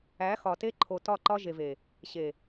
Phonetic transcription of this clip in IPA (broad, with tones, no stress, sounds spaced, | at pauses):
æ˨˦ x ɒ˨ t e˦ ǃʰ o˨ t ɒ˦˨ ǃ ɒ˦ ʒ e˨ v e˨ | ɕ e˨